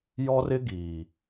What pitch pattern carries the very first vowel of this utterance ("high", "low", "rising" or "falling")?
high